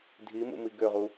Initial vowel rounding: unrounded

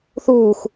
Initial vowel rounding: rounded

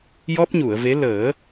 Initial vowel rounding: rounded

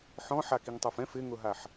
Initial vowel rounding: rounded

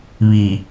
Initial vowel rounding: unrounded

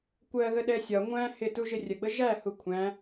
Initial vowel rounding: unrounded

